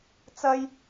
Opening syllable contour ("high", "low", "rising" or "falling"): high